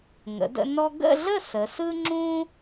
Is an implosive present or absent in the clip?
absent